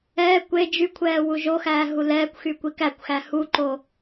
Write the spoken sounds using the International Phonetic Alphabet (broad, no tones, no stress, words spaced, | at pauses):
ɛː kʷe d͡ʒykʷʰɛː wuʒoxæː ɦulɛːkʷxy kʷikækʷxæ huǃo